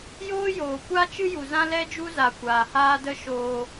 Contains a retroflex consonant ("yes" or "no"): no